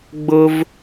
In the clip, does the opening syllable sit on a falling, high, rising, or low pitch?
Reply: high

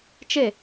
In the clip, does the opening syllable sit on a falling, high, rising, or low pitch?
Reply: falling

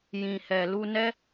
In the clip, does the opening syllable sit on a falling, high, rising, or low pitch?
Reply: low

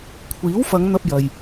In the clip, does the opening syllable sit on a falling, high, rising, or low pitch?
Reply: rising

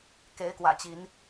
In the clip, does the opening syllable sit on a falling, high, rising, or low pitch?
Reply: rising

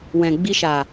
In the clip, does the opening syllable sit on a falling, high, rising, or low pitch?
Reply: low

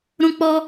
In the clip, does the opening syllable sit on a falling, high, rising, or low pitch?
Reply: high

